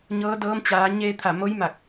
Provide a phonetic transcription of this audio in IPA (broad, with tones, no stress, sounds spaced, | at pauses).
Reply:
ɲ ɤː˧˥ d ɤː˧˥ m t͡ɕ aː˩˧ ɲ eː˧ t̪ʰ a˧˩ m o˧˥ j m a˧˩ k̚